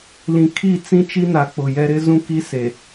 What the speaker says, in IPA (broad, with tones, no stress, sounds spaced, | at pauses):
l ĩ˨ kʰ i˦˨ t͡s ĩ˦ t͡ʃ i˦ n a˨ k͡p ʊ˨ j ɛ˦ ɾ ɪ˦ z ũ˦ k i˦ s e˨